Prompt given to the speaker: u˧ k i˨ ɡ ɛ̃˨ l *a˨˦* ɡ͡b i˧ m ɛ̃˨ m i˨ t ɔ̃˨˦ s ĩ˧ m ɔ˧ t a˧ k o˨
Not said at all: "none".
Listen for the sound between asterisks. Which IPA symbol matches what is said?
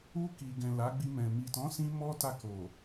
a˨˦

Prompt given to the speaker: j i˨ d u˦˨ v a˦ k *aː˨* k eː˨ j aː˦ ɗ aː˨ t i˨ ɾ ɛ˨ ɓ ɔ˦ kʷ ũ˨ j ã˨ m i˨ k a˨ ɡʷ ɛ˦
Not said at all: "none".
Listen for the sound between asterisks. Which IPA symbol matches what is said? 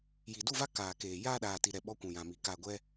aː˨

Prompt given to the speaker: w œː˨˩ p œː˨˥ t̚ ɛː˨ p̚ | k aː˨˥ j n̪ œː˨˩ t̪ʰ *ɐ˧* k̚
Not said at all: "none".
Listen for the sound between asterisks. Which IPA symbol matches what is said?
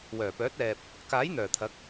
ɐ˨˥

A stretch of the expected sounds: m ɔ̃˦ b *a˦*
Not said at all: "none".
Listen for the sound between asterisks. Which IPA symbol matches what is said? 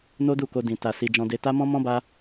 a˦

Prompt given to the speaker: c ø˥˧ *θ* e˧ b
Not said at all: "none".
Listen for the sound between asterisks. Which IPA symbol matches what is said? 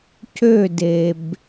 d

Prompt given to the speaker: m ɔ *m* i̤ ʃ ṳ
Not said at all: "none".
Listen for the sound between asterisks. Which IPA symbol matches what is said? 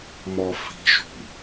f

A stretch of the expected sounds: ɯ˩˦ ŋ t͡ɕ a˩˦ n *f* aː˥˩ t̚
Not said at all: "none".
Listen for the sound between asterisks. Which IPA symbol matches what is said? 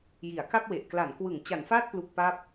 f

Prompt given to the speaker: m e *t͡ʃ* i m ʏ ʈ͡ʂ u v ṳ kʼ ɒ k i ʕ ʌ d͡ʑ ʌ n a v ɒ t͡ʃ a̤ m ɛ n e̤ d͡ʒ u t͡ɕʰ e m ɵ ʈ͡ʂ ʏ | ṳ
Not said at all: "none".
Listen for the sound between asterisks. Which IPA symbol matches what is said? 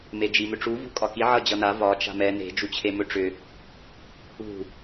d͡ʒ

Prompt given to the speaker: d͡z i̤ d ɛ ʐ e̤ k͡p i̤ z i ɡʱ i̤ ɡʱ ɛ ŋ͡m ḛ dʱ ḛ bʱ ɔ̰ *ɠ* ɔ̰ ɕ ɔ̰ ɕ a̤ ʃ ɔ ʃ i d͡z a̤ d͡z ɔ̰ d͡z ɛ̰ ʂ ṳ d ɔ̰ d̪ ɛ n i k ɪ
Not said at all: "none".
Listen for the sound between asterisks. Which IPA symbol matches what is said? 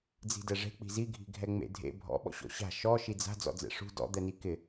ɓ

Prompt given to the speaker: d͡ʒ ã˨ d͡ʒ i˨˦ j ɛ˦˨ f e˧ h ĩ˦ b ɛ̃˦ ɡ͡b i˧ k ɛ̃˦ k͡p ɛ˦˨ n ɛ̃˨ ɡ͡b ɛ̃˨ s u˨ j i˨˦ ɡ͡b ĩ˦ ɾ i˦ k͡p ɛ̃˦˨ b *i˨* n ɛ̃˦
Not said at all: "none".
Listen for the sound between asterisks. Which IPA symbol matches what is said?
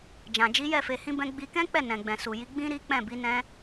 i˨˦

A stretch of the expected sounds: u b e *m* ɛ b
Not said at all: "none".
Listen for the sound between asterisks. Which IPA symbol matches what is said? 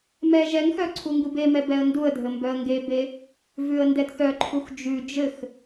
m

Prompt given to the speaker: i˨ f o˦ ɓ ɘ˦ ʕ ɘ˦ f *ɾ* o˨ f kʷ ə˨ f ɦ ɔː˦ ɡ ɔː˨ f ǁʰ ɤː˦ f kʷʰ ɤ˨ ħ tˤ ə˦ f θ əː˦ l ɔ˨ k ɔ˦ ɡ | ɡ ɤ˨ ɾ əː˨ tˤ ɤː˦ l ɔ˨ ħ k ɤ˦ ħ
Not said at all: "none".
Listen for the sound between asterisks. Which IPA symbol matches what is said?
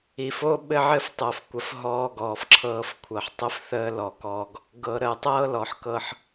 tˤ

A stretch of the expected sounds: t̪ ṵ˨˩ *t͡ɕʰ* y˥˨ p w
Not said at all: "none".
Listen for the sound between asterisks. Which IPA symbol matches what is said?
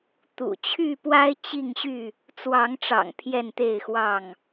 t͡ɕʰ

